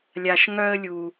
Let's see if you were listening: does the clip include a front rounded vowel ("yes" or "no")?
yes